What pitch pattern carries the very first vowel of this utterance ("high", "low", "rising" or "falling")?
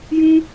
high